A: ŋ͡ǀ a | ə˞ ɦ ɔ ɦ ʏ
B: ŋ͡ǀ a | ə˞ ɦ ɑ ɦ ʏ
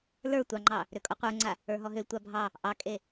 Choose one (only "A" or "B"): A